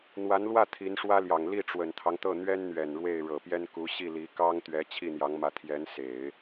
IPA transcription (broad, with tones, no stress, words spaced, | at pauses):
n̪wa˧˥nlwä˥˩ t̪ʰi˧˥nʂwä˥ljɑ˨˩ŋ li˥˩ʈ͡ʂwə˨˩nt̪ʰɑ˦ŋt̪ɤ˥˩ n̪ɥɛ˥nn̪ɥɛ˨˩n ɻwe˥˩ɪ̯ ɻɤ˨˩pjɛ˥n ku˧˥ ɕi˥˩li˧˥ kɑ˥ŋ t̪ɥɛ˧˥t͡ɕʰi˥˩n̪jɑ˧˥ŋmä˧˥ t̪ʰjɛ˧˥nse˨˩˦ɪ̯